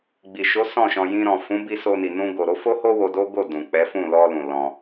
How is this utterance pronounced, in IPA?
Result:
ɡ͡b i˨ ʃ o˨˦ s ɔ̃˦˨ ʃ ɔ̃˧ j ĩ˧ ɾ ɔ̃˨ f ũ˨˦ b i˧ s o˧ n i˨ n ũ˧ ɡ o˨ ɾ o˨˦ f o˦ h o˦ w o˧ d o˦ ɡ o˦˨ d ũ˨ k͡p ɛ˨˦ f ũ˦˨ l ɔ˧ l ũ˨ l ɔ̃˧

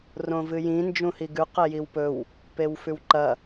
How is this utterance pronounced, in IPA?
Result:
r õ v ɨ j ĩ n d͡ʒ ũ h i ɡ ʉ q e j i w p ɵ w | p e w f ʉ w ǃ ɐ

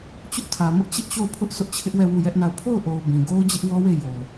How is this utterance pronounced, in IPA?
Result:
t͡ɕ ʊ˦ ʔ tʰ ä˨ m ʊ˦ ʔ t͡ɕ ɪ˦ ʔ t͡ɕ o˦˨ ʊ̯ pʰ ʊ˦ ʔ s ʊ˦ ʔ t͡ɕʰ ɪ˦ ʔ w ɛ˦˨ w u˦˨ j ɛ˦ ʔ n a˦˨ ʊ̯ pʰ o˦˨ ʊ̯ ʔ o˨ ʊ̯ b ĩ˨ ɡ o˦ ʊ̯ d͡ʑ ɪ˦ ʔ w ɔ˦ w e˦˨ j o˨ ʊ̯

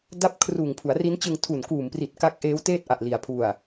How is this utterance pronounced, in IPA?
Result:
d a˥˩ p̚ kʰ r uː˨˩ ŋ pʰ u˩˦ a̯ r i˦˥ n t͡ɕ ɯ˧ ŋ tʰ u˨˩ n k uː˨˩ m p r i˨˩ t̚ k a˦˥ k̚ ʔ eː˦˥ w t eː˥˩ t̚ ʔ a˨˩ ʔ l i˩˦ a̯ pʰ u˨˩ a̯

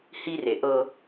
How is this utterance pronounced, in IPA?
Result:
h i˦ r e˨ ʔ ɤ˦

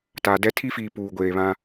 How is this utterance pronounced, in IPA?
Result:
t aː˨ d ɛ˦ tʰ i˦ f iː˨ p uː˨ ɡʷ eː˨ β ã˦

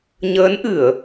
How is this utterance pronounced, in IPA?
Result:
ɲ əː˨˦ n ʔ ɨ˧˩˨ ə̯

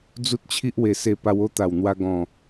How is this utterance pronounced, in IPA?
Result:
d͡z u˦ t̚ t͡ɕʰ i˦ ʔ w e˨˩ s e˧ p a˧ w o˦ t̪ a˨˩ w n̪ w a˧ ɡ ɔ̃˨˩

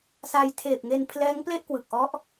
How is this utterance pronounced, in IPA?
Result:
s a˧ j tʰ eː˨˩ p̚ ŋ e˧ n pʰ l ɛː˦˥ ŋ p l e˥˩ ʔ k w ɯ˨˩ k̚ ʔ ɔ˦˥ ʔ

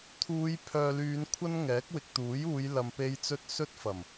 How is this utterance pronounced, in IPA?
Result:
t̪ʰ uː˨˧ j pʰ œː˨ l yː˨˧ n kʷʰ ɐ˥ n ŋ ɛː˨˥ k̚ w ɪ˨ k̚ t̪ uː˨˥ j uː˨˧ j l ɐ˨ m p e˨˧ j t͡s ɵ˧ t̚ s ɵ˥ t̚ f ɐ˨˩ m

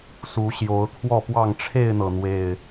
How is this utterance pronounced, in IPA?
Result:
s u˨˦ ɕ j o˨˦ ʊ̯ t̪ʰ w ɔ˥˨ p w ɑ˥˨ ŋ ʈ͡ʂʰ e˥˨ ɪ̯ n̪ ɤ˩ n̪ w e˨˩ ɪ̯

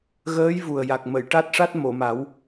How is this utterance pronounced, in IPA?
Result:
ɣ əː˧˥ j v u˨˩ ə̯ j a˨˩ k̚ m ə˨˩˨ j ʈ a˦˥ t̚ ʂ a˦˥ t̚ m o˨˩˨ m a˨˩˦ w

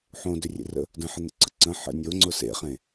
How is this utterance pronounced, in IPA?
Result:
ħ õ d ʏ rʲ ḛ r ə̰ | d ə̃ ħ ə n̪ ə̰ ǀ ə̰ ǀ ə̃ ħ ə̰ nʲ o ŋ͡ǀ ʊ s ḛ χ ẽ

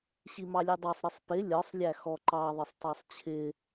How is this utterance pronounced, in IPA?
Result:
ɕ i m ɑ lʲ ɛ dˤ ɑ sˤ ɾ ɪ sˤ p ɪ lʲ ɒ sˤ lʲ æ x ɔ ǃ ɑ ðˤ ɪ sˤ tˤ ɑ sˤ t͡ɕʰ ɪ

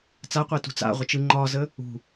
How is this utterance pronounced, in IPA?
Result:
t͡s a qʷ e t ṳ t͡s a̰ ʁʷ ə t͡ʃ ɯ ŋ͡ǃ ɒ z ə | ṳ

